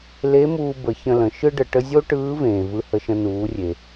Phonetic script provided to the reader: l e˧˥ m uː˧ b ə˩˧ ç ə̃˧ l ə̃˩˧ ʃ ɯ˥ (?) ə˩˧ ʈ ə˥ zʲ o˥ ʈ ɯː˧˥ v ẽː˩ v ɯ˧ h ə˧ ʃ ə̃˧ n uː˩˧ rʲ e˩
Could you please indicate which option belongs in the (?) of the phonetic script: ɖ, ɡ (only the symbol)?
ɖ